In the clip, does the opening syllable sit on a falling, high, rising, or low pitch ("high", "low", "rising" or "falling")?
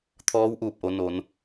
rising